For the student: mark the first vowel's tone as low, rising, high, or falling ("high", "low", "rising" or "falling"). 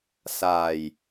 low